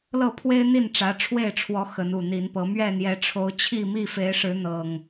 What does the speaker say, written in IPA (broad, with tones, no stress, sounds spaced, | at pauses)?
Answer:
l ɤ˥˨ pʰ w e˦ ɪ̯ n̪ i˥˨ n ʈ͡ʂ ä˨˦ ʈ͡ʂʰ w e˥˨ ɪ̯ ʈ͡ʂʰ w ɔ˨˦ x ə˨˦ n u˨˩ n̪ i˨˦ n p ɤ˨˦ m ɥ ɛ˥˨ n̪ j ɛ˨˦ ʈ͡ʂʰ o˨˦ ʊ̯ t͡ɕʰ i˥˨ m i˥˨ f e˨˦ ɪ̯ ʂ ɻ̩˨˦ n̪ ɤ˨˩ ŋ